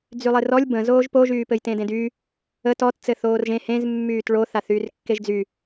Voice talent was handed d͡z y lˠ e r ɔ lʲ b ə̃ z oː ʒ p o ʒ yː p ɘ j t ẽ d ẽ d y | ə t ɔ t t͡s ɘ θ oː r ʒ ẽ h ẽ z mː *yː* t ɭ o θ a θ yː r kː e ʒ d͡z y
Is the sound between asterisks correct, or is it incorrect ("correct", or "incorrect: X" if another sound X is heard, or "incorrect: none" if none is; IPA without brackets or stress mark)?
correct